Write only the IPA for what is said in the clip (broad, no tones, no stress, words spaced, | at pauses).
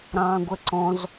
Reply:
ɾɑ̃ːɡʷəǀɔ̃z